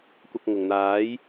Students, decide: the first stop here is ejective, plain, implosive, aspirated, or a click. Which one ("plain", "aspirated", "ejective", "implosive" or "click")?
plain